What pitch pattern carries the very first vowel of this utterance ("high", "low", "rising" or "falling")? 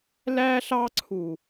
high